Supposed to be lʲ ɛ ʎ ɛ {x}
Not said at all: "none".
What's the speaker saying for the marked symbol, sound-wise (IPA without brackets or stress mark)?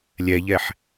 ħ